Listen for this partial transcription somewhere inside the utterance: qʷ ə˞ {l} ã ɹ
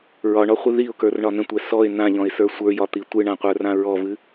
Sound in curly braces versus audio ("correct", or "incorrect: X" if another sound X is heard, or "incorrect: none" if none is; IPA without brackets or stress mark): incorrect: r